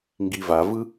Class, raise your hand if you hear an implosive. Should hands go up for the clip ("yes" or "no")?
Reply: no